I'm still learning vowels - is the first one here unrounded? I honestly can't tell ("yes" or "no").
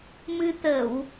yes